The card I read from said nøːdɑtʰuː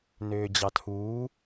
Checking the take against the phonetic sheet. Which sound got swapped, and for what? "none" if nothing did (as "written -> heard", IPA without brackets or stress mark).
d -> d͡ʑ